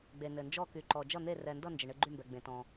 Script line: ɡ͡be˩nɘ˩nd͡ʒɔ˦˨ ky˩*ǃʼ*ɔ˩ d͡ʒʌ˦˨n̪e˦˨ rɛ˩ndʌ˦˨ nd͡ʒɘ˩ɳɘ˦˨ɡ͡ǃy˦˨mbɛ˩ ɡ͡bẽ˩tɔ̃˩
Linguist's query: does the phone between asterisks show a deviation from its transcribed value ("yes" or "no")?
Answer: yes